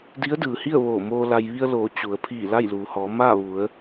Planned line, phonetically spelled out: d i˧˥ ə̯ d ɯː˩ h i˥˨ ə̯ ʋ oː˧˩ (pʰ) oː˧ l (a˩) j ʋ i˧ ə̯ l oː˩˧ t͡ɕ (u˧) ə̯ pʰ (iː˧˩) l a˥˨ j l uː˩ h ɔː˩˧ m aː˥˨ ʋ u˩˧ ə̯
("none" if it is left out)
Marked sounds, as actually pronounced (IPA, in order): m, a˧, u˩˧, iː˧˩

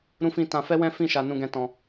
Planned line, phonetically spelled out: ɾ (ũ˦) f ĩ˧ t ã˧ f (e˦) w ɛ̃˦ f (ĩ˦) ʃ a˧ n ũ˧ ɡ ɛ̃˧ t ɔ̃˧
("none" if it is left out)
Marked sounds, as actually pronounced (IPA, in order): ũ˧, ɛ˦, ĩ˦˨

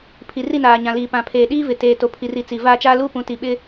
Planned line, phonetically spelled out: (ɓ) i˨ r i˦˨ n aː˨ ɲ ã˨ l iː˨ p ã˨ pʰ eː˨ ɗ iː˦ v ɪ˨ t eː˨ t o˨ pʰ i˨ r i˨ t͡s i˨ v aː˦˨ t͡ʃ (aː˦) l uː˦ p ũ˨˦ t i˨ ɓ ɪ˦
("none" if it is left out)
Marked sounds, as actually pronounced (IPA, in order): pʰ, aː˦

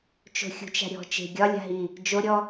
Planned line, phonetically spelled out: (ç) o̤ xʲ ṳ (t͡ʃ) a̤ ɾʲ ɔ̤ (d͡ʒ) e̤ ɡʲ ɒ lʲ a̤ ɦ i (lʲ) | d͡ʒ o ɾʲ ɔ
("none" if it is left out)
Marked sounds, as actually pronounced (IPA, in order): t͡ʃ, t͡ʃ, t͡ʃ, none

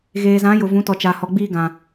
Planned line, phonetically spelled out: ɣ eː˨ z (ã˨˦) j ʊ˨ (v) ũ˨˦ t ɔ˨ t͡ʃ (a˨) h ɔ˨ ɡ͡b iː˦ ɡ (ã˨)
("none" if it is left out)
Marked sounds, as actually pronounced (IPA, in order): ã˨˦, v, a˨, ã˨

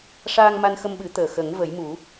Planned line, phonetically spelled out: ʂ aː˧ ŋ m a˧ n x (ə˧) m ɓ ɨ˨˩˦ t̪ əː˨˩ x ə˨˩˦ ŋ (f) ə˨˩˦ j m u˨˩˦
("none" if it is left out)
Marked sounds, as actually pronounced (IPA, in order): ə˧, v

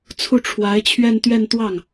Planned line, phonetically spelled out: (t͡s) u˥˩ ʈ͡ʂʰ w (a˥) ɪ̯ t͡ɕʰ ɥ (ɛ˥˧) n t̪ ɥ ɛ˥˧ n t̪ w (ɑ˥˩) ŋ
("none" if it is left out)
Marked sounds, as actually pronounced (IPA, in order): t͡sʰ, a˧˥, ɛ˥˧, ɑ˥˩

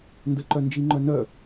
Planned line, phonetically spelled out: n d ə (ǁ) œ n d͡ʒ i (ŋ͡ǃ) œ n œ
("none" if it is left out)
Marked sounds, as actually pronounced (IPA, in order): ǃ, ŋ͡ǃ

